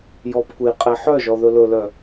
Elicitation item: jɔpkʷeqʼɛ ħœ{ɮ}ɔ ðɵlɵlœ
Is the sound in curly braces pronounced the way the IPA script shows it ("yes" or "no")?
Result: no